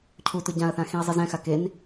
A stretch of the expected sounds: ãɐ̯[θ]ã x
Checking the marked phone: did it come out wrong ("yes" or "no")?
no